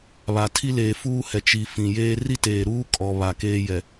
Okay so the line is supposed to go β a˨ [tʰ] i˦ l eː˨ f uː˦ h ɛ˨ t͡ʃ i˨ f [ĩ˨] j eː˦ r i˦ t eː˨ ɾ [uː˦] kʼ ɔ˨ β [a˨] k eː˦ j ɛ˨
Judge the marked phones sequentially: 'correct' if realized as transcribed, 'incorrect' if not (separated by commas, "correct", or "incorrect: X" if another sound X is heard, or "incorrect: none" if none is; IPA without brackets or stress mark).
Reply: correct, correct, correct, correct